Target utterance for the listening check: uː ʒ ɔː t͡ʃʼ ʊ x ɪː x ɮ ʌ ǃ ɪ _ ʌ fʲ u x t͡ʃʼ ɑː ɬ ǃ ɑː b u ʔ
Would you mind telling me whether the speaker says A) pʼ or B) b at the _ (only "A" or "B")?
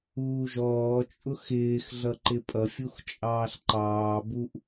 A